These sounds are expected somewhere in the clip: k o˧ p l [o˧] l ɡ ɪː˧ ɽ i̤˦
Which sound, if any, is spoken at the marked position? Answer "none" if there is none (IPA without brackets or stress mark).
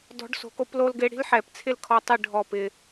o˧